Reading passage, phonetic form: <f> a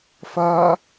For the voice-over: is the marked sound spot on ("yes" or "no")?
yes